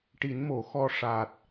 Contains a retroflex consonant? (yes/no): yes